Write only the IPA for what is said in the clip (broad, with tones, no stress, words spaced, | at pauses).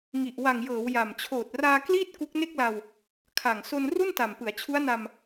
ŋi˨˩ʔ wa˨˩ŋjɤː˩˦w ja˨˩m t͡ɕʰoː˨˩t̚raː˧ kliː˥˩t̚ ku˦˥k̚ne˥˩k̚la˧w | kʰa˨˩ŋ so˧n ru˥˩nta˨˩m pɯ˩˦a̯t͡ɕʰu˦˥a̯na˧m